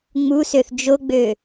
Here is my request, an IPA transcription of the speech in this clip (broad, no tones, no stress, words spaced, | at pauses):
ŋ͡musøθ d͡ʒoɡ͡bø